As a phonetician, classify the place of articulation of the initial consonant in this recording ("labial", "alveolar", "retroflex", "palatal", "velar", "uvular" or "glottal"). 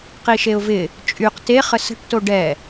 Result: uvular